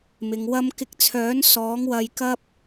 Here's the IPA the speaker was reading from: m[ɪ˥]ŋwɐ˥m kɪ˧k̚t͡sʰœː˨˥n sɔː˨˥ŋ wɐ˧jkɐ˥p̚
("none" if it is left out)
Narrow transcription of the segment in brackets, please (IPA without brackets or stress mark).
ɪ˨˧